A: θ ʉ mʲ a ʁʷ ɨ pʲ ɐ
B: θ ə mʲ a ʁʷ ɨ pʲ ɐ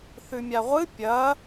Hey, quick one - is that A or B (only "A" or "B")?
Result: A